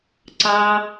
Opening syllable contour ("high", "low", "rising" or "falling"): high